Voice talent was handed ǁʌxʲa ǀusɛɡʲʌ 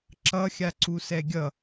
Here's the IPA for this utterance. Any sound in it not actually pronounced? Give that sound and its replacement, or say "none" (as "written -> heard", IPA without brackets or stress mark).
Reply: none